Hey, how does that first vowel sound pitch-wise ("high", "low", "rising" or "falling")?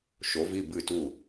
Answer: rising